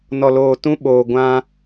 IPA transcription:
n ɔ˨ l oː˨ t ũ˦ ɓ oː˨ ɡʷ ã˦

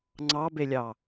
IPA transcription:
ŋ͡ǀ ɑ b e lʲ ɑ

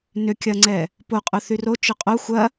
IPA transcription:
n ʏ kʲ ɐ ŋ͡ǀ ɛ | p o qʼ ʊ θ y r o t͡ʃ ʏ qʼ o xʷ ɐ

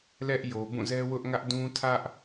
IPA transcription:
l ɛ˦ ʔ j o˨ b ũ˦˨ z ɛ˦ w ʊ˦ ʔ ŋ ä˦ ʔ d ũ˦ tʰ ä˦ ʔ

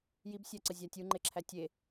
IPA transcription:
j i b sʲ æ ǀ ə zʲ a tʲ u ŋ͡ǃ e ǁʰ æ tʲ e

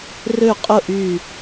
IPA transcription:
r ø˥˨ qʼ ʊ˥˨ ʔ y˧˩

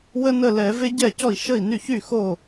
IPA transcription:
w ə˥ n ə˥˩ l ɛ˧˩˧ v e˥ ɟ ɛ˥˩ c ɔ˥˩ i̯ ʃ ə˥˩ i̯ n y˥˩ ç y˥˩ x o˥˩

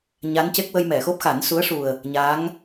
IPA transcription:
ɲ a˧˥ n c e˦˥ k̚ w ə˧ j m ɛ˨˩˨ x o˦˥ p̚ x a˨˩˦ n s u˧˥ ə̯ ʂ u˨˩ ə̯ | ɲ aː˧˥ ŋ

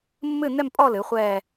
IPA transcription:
mː ɨ˥˧ n ɛ˥˧ m pʼ ɔ˥˧ l ɨ˩˥ χʷ ɛː˥˧

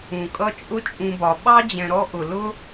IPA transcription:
ũ˩ kʼ ʌ˦ t͡ʃʼ ʊ˦ t͡ʃʼ ũ˨ b ɒ˩ ɓ ɑ˥ d͡ʑ ɛ̃˨ ɾ ɔ˦ ʔ ʊ˩ l ʊ˥

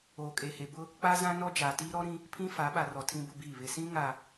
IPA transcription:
oː˨ kʼ e˨ h e˨ b ʊ˦ | k͡p a˦ z ã˦ n ɔ˦ d͡ʒ aː˨ t iː˦ ɾ ɔ˦ ɾ ĩ˦ | pʰ ĩ˦ f a˨˦ ɓ a˨ r ɔ˨ tʰ ĩ˦ b ʊ˦ b iː˦˨ β ɪ˨ s ĩ˦ ŋ a˨

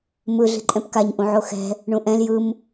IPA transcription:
m ɯ ɮ i̤ ǃʼ ɛ̃ p k a ɲ ʔ ũ ʕ o x ɛ̤ | ɳ ũ ʔ ɛ̃ l j ɯ m

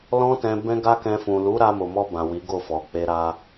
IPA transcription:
l ɔ̃˦ t ɛ̃˧ b ɛ̃˦ ɡ a˦ k ɛ̃˧ f ũ˨ l u˨˦ ɾ a˧ m o˨ m ɔ˧ b ã˨ w i˨˦ ɡ o˦˨ f ɔ˨ k͡p e˧ ɾ a˧

